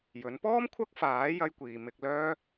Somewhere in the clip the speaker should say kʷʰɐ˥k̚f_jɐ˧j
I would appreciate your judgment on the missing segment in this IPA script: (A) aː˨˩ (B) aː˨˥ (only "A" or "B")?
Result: B